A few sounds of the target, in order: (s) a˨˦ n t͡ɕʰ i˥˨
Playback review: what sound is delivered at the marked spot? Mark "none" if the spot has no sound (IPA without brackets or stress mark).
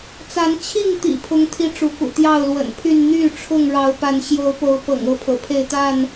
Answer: t͡s